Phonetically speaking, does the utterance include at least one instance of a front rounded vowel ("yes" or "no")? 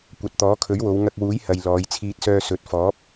yes